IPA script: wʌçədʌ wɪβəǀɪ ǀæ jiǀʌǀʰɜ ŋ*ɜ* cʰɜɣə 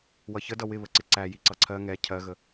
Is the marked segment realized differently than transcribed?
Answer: yes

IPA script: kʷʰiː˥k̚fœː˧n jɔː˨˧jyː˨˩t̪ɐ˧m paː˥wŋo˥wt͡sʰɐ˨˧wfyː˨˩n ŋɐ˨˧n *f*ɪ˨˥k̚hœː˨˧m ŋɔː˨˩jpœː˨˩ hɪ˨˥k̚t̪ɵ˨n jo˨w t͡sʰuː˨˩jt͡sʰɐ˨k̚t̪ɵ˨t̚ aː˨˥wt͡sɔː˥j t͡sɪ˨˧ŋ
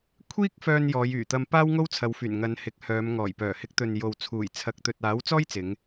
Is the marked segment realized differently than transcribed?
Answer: yes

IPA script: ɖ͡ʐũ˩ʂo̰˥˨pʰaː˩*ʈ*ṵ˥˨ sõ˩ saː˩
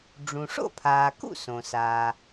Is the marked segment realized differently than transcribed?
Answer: yes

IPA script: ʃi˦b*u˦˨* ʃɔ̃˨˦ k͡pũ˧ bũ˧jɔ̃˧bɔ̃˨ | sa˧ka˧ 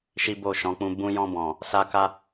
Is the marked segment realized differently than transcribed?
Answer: yes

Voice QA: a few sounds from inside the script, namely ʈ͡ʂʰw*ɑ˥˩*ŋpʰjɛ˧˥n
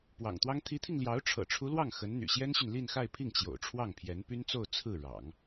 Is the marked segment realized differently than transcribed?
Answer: no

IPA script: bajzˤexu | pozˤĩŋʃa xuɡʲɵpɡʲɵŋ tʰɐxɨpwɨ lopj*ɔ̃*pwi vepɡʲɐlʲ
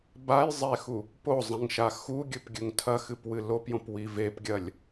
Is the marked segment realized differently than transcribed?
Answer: yes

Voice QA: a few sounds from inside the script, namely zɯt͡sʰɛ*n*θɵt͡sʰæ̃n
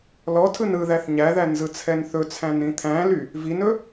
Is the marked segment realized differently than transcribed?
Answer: no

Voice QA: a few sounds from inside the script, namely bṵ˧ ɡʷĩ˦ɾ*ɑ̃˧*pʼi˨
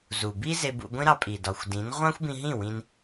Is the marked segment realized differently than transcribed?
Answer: yes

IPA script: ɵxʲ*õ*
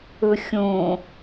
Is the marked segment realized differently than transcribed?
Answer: no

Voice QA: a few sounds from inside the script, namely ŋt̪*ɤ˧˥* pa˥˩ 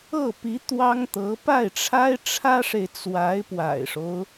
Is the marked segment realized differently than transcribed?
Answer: no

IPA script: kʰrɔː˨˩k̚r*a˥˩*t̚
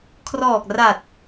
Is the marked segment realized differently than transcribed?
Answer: yes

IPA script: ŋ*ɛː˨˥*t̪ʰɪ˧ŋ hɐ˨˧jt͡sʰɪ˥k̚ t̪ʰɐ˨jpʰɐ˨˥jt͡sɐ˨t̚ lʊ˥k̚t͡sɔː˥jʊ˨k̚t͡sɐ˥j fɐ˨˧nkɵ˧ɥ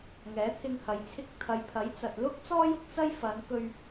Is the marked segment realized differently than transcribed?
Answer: no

